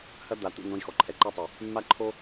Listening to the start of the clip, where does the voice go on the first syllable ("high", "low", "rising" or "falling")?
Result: high